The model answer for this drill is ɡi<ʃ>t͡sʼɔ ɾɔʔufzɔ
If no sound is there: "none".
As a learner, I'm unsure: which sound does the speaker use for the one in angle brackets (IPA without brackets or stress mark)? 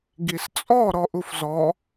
s